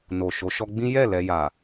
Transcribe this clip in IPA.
no˨ ʃo˨˦ ʃɔ˧ɡ͡bĩ˦ jɛ˦˨ lɛ˧ja˨

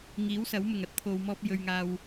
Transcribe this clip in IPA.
ŋiː˨˥wsɐ˨˥wmʊ˨˩ŋɐ˨˥t̚ t̪ʰo˨wmɔː˧p̚jɵ˨ɥŋaː˨w

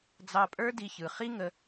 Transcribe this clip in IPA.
d͡zɑ˧pʼə˞˦di˧ çɯ˨χi˦ŋə˧

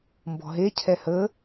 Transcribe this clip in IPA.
mbɔ̤ɦe cʰɛhəː

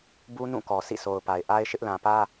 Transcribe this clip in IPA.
bu˦ nũ˦˨kɔ˨ sḭ˦˨so˨ʊ̯pa˨ɪ̯ ʔa˦ɪ̯ʃɪ˦ʔ lã˨pä˦

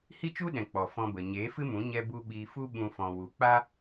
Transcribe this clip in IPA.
hi˦t͡ʃu˦ɗɛ̃˨ k͡pɔ˨fɔ̃˧bə˨ ɲeː˨˦fɨ˦mũ˨˦ ɲɛ˧bu˧ ɓiː˧fu˦ ɓũ˧ fɔ̃˨ wu˨k͡pa˦

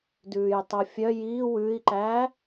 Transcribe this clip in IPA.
dʉːjtˤofʲœ ji wʉi̯ǃæ

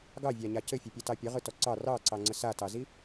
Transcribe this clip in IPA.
ɡɑvʲaɲa cɘfʲɘpʲatɑ pʲəʁɯtɔ ǀɑ rɑǀɑŋ͡ǀə satɑzi

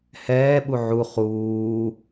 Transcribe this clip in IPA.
hɛːɓu ʕu χuː

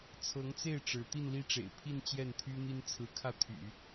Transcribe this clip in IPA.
t͡sʰɤ˧˥ŋt͡se˥˩ɪ̯ ʈ͡ʂɻ̩˧˥ t̪i˥˧nli˥˩ʈ͡ʂḛ˨˩ɪ̯pʰi˥˧n t͡ɕjɛ˥˩nt̪ʰy˥n̪i˥n t͡sʰɹ̩˧˥kʰä˥˩t̪ʰy̰˨˩˦

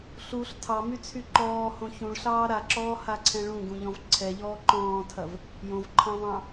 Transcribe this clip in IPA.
ɬuɬ tʰɑmyt͡sʰy ǃɔːhõ çũɭɬɑː ɾaǁɔːhaǀʰɛ̃ ɭũɡũʎɔ̃v ǀʰɛʎɔː ǃɔ̃ːtʰɐv | jõvǃʰɑ̃vɑ̃

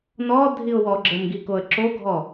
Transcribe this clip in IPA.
nɔ dʱiʊ̯wɔɡ͡ǁəmɡi koə̯ǁoɡʱɔ

